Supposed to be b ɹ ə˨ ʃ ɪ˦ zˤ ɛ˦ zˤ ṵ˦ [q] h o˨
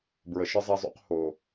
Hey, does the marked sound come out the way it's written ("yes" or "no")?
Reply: yes